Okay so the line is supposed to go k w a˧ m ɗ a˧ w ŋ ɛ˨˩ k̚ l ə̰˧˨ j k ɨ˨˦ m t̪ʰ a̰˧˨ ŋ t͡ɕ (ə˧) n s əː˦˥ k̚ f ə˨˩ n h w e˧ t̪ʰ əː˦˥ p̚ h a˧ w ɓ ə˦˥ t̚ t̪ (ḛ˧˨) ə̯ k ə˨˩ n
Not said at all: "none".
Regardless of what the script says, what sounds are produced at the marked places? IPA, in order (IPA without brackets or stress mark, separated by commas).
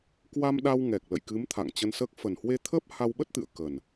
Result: ə˧, ɨ̰˧˨